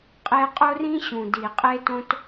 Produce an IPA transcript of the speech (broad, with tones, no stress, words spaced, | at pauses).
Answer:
qʼe˧ qʼo˦ rĩ˦ɕũ˨ di˨qʼe˦tõ˦t